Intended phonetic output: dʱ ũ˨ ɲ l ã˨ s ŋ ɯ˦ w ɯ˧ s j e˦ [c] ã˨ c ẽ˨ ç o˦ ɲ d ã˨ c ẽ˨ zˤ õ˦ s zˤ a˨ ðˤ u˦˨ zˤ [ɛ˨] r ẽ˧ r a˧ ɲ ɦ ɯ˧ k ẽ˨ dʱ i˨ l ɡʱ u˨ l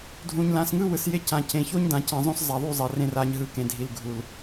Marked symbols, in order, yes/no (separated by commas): yes, yes